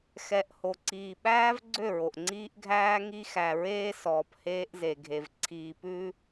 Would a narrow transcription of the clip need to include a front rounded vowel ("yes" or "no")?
yes